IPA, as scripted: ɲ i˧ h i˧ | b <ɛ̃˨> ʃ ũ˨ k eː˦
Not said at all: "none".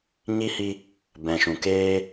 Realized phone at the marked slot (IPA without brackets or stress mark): ɛ̃˨